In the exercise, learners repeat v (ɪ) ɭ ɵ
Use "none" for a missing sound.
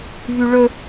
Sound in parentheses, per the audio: y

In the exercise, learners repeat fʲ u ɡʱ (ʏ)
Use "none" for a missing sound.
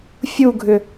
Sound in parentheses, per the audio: ʏ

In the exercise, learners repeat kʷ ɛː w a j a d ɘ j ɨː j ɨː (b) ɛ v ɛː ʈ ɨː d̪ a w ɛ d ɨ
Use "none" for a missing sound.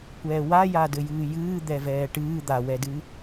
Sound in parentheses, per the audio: d̪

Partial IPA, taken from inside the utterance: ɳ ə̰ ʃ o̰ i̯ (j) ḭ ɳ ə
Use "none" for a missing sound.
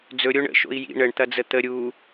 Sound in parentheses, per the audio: j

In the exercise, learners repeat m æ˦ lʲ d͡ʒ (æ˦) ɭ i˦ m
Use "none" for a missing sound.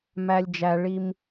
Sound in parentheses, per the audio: æ˦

